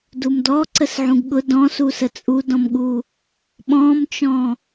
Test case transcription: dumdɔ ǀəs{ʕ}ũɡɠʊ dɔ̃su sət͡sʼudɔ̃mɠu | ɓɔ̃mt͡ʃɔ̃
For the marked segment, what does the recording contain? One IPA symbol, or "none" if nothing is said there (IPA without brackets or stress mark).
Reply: ʕ